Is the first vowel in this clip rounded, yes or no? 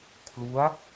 yes